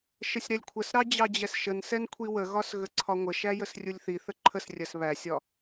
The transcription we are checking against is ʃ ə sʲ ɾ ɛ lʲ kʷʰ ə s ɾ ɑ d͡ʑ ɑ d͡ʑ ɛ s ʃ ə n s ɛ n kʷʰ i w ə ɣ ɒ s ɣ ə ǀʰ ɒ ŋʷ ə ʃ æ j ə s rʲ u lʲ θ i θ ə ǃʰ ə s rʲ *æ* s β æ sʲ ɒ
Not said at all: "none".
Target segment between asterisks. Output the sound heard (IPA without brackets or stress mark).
ɜ